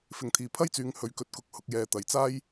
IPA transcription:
fɪ˨˧ŋt̪ʰiː˨pʰɐ˥jt͡syː˨˧ŋ hɵ˨ɥkɵ˨t̚kʊ˨˥k̚ hʊ˧k̚jɛː˧t̪ɐ˨jt͡saː˥j

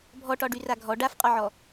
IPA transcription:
bʱɔʈɒɖyra ɡʱɔ ɖafqʼɔʕɔ

